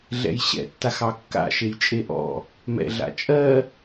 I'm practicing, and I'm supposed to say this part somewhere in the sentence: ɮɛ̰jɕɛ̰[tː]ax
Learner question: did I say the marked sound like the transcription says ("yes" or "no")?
yes